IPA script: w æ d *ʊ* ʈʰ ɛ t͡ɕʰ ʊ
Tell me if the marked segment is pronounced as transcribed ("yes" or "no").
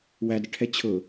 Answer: no